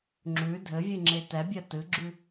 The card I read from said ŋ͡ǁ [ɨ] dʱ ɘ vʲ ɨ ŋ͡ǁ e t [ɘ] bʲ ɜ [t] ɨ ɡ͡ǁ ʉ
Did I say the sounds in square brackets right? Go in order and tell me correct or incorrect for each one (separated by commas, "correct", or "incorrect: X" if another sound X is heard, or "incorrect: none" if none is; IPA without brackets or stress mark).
incorrect: ʉ, incorrect: ɛ, correct